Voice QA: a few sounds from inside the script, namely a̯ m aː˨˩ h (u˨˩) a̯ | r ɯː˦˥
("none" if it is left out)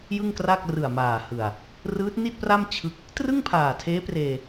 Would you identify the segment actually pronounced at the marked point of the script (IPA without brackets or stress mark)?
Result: ɯ˨˩